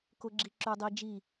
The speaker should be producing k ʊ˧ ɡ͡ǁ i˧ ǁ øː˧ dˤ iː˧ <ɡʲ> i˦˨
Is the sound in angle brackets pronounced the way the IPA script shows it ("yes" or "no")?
no